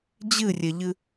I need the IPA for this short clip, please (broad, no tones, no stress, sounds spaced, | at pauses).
d͡ʑ ɨ rʲ ɛ ʎ ɨ